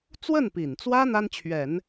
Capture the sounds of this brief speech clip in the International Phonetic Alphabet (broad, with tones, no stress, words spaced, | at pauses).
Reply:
t͡swə˥˩npi˨˩nt͡swä˥ n̪a˥nt͡ɕʰɥɛ˨˩˦n